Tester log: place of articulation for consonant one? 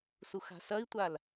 alveolar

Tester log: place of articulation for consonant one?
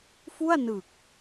labial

